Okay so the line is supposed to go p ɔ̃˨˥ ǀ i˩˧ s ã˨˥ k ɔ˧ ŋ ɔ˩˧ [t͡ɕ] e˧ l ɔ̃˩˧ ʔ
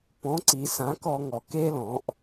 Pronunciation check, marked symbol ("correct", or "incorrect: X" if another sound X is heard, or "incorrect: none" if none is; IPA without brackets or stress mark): incorrect: k